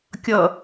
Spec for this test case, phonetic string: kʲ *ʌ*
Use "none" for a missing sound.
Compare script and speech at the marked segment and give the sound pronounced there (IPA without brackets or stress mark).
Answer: ʌ